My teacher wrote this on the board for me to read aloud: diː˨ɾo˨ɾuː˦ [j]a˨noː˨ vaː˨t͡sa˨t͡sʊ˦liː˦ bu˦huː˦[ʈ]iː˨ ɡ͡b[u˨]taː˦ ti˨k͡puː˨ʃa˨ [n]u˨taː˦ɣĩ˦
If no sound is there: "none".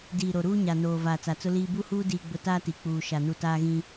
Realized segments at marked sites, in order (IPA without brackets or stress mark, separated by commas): ɲ, d, ʊ˨, n